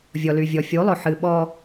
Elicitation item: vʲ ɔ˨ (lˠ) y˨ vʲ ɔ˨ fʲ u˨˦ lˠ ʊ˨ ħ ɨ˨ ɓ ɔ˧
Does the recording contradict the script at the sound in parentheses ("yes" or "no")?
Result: yes